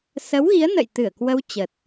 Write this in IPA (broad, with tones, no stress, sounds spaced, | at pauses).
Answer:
s ə˨˦ w ɣ i˨˦ ə̯ n ə̰˧˨ j t̪ ɨ˧˩ ə̯ k w ə˧ w t͡ɕ ə˨˩ t̚